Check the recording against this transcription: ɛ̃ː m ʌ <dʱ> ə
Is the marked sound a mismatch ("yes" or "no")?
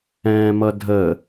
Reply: no